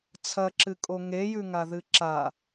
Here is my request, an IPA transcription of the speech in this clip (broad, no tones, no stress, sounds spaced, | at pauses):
t͡sʰ ɐ ǁ ɨ kʼ o ŋ e j ʉ ŋ a ð ɨ ǁ a